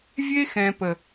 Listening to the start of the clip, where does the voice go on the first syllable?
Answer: high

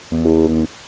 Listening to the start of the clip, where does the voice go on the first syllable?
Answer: low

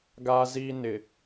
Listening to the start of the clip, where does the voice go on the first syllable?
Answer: high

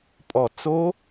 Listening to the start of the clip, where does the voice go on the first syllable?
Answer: low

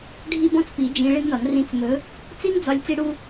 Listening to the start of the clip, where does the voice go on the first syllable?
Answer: high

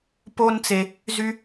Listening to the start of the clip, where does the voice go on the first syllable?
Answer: high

